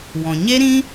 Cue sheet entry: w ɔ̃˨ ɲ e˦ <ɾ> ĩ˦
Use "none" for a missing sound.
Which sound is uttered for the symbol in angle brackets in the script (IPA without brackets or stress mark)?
ɾ